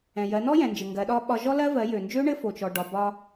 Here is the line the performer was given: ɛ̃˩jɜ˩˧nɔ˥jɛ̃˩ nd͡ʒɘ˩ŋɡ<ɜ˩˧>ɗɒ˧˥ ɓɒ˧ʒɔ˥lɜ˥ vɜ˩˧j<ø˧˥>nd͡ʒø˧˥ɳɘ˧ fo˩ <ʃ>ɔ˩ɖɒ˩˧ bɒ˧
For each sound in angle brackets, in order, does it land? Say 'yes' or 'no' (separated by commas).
yes, no, no